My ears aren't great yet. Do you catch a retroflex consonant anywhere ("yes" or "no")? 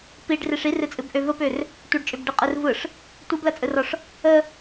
yes